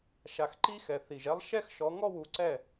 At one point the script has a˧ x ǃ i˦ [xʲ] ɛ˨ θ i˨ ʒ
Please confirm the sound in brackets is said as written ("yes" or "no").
no